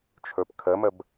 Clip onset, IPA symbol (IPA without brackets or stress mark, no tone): t͡ʃʰ